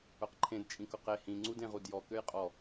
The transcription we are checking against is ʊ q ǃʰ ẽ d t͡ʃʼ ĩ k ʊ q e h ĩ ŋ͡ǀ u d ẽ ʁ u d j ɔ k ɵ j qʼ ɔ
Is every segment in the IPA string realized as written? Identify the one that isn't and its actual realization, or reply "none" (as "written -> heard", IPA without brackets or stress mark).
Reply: ɵ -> ø